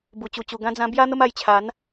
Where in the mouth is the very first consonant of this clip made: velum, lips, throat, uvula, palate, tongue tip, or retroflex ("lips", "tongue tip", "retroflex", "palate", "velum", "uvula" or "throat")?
lips